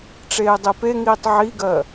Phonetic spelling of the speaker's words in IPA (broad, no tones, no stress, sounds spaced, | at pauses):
ʈ͡ʂ eː dˤ e p e ŋ iː tˤ ʕ i ɡ ɜ